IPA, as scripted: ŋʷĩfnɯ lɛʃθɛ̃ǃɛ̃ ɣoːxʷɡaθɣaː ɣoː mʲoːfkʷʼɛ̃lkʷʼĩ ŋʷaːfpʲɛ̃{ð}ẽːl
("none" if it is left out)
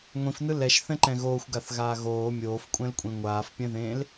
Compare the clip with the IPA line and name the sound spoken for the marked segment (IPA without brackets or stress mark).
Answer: ð